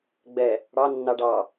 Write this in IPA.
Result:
ɡ͡b ɛ | ɽ ɑ nː ɑ ɖ ɑ

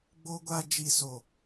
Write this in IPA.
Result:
ɡ͡b o˦ ɡʷ a˦ d͡ʒ i˨ s o˨

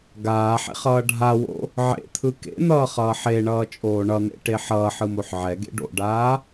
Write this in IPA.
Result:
ɡ aː ħ ḛ χ ʌː ɖʱ a w o̰ | ʕ ḛ t̪ʰ ɯ k ḛ n̪ ʌː χ ʌː ħ e ɳ ʌː t͡ʃʼ oː ɳ ʌ n̪ ḛ ʈ e ħ ʌː ħ ɯ m o ħ ʕ ɛ ɡ ḛ ɖ o̰ ɖ aː

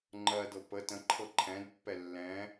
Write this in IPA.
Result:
ŋ͡ǃ ɜ d ɤ p ə t ə̃ ǃʰ ɤ ǃʰ ɛ̃ d pː ɛ lː ɛ̃

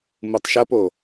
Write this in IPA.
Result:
m u tˤ ʃ ɐ p o

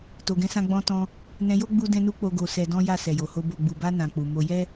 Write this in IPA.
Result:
t o˨ ɡ ɛ̃˨˦ s ã˧ ɡ͡b ɔ̃˧ t ɔ̃˧ | n ɛ̃˧ j o˦ ɡ͡b u˧ d ɛ̃˧ n u˧ k͡p o˧ ɡ o˧ s ɛ˧ d ɔ̃˦ j a˦˨ s ɛ˨ j o˨ h o˧ b o˨ ɡ͡b u˨ b a˧ n ã˨ k͡p u˨ m o˧ j ɛ˦

